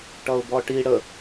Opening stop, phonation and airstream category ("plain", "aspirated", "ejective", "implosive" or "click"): plain